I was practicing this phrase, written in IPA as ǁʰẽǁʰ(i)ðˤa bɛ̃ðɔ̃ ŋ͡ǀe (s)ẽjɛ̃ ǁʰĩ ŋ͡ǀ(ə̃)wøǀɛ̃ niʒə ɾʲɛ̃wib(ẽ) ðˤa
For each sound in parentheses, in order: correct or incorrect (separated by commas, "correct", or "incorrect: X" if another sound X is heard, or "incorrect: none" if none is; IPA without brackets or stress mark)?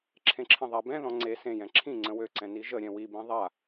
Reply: incorrect: ĩ, correct, correct, incorrect: ĩ